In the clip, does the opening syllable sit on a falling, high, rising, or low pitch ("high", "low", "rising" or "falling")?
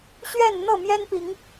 falling